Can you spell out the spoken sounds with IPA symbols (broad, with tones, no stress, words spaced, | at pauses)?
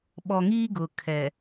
ɓɔ˨ŋiː˦ ɡʊ˨kʰɛ˨